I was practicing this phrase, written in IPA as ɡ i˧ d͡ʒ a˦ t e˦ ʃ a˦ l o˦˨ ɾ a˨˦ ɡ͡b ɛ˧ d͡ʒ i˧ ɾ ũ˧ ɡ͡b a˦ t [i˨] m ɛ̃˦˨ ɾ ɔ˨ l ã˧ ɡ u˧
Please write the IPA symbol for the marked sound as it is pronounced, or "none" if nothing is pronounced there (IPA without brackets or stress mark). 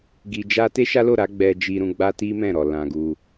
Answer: i˦